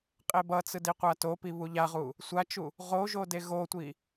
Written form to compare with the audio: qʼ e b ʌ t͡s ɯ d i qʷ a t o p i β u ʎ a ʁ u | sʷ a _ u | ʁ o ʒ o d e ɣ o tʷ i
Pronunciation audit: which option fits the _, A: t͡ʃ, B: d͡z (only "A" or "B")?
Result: A